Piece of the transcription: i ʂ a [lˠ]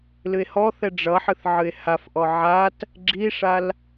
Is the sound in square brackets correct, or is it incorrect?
incorrect